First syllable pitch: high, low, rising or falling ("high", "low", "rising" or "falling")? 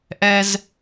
high